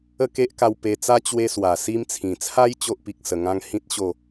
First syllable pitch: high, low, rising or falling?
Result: falling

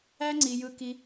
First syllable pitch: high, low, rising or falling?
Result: high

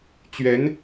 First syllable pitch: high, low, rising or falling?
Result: rising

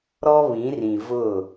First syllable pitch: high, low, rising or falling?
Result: high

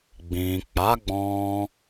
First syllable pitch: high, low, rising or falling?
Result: low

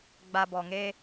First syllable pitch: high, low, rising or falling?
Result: low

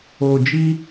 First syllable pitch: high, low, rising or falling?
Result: low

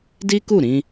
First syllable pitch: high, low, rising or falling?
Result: high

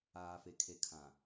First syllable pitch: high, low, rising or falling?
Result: low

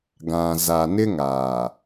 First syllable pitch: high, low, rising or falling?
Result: low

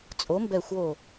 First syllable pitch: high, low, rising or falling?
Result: rising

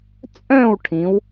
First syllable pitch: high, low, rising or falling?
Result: falling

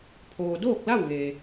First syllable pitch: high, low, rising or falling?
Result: low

